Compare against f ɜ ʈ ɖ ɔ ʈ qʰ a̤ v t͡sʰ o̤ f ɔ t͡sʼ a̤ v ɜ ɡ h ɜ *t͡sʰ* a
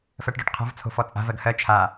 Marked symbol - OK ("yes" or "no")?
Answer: no